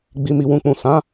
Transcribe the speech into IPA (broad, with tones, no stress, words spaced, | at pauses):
ɡ͡bi˧mi˧wũ˧ k͡pũ˨sã˨˦